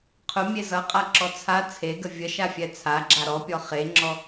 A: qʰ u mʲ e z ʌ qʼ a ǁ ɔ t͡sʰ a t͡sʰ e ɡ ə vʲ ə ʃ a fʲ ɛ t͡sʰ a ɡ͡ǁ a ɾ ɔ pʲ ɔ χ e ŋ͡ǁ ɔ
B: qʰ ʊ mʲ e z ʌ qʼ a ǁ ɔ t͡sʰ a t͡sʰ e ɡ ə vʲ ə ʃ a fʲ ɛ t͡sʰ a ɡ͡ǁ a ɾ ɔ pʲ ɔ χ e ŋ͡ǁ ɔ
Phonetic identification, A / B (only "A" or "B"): B